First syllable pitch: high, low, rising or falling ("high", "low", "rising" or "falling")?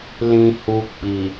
low